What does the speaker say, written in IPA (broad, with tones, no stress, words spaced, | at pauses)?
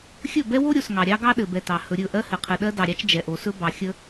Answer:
xʲɵ˦˨bɛ˦wo˦ ɾʲo˨sŋɑ˨ ɾʲɑ˦ɡɑ˦ ɗɘ˨bɛ˨tɑ˨ hɵ˨ɾʲɵ˦˨ ʔɜ˦ hɘ˨qʰɘ˨ɗɜ˦ dɑ˨ɾʲɑ˦t͡ʃ d͡ʒɛ˨ ʔo˨sɵ˦bɑ˨ xʲə˦